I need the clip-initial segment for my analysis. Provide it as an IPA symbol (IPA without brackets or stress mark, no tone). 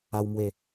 a